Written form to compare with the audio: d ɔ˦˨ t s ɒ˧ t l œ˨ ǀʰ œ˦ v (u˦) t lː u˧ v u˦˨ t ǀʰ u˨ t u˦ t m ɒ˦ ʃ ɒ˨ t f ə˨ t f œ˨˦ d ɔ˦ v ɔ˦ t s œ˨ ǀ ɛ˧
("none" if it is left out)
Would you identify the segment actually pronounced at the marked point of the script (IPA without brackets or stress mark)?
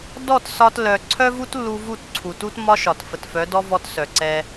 u˦